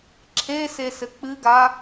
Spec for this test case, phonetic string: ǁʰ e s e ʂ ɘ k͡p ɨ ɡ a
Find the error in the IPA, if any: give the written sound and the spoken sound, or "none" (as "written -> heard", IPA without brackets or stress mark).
ʂ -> s